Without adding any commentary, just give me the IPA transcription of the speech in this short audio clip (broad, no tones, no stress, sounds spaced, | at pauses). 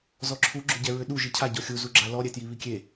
z ɔ ǁʰ u ɡ͡ǁ ʏ ɟ ɛ ɹ ʏ ɗ u ʒ i cʰ a ɟ ɔ xʲ u z u ɡ͡ǁ a l ɔ ɾʲ ɛ t j i β i kʲ e